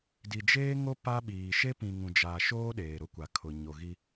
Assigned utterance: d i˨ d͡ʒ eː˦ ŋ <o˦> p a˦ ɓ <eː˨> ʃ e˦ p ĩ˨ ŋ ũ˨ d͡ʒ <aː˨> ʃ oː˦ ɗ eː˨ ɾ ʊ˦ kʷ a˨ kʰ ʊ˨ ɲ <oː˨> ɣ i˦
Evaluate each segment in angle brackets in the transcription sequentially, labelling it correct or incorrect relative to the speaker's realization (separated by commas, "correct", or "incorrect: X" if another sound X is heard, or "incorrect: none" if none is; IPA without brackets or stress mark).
correct, incorrect: iː˨, correct, incorrect: o˨